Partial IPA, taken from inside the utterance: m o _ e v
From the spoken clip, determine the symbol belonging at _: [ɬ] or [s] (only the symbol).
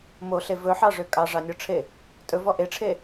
ɬ